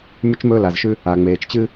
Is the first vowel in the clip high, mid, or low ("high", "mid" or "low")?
high